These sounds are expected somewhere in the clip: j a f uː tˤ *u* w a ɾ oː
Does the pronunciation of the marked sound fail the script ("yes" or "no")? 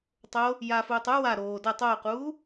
no